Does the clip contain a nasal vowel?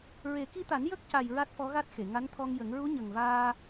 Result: no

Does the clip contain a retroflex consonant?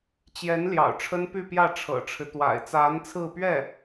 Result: yes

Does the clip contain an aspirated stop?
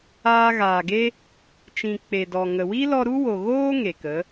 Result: no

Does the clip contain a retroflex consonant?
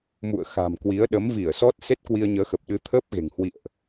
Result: no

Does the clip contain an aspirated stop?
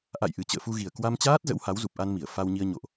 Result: no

